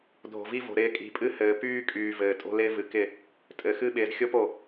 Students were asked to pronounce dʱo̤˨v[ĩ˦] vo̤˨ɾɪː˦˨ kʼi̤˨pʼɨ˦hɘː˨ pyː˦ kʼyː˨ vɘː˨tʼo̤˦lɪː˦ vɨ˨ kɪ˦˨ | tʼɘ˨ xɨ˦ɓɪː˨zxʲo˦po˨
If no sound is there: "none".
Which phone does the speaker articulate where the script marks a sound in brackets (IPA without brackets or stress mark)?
i˦